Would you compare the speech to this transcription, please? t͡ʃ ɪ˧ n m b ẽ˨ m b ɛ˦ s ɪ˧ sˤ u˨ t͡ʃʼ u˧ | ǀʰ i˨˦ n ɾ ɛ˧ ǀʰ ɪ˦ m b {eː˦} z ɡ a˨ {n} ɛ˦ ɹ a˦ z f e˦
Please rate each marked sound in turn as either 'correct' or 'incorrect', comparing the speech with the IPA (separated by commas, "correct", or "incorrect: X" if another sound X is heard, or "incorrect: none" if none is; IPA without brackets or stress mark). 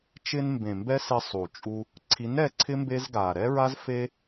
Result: incorrect: e˦, incorrect: ɾ